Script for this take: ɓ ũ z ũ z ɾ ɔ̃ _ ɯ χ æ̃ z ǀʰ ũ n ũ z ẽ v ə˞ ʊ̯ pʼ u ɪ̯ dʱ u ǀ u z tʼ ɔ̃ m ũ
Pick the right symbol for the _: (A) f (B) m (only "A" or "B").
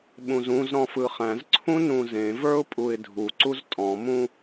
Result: A